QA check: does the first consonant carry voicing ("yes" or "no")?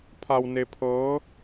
no